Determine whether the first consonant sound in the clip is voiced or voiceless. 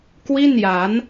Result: voiceless